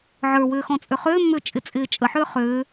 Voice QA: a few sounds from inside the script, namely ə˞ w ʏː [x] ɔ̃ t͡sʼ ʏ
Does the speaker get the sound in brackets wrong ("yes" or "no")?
no